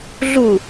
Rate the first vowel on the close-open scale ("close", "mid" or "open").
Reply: close